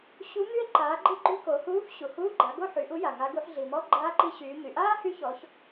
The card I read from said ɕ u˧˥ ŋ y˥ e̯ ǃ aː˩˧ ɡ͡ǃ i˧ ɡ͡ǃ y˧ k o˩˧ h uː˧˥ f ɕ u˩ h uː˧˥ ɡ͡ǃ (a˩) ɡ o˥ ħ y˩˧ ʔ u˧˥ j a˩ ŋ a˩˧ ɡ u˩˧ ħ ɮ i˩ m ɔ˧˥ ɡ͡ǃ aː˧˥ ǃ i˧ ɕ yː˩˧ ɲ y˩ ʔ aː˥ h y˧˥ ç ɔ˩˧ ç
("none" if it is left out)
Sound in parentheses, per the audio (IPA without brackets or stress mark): a˩˧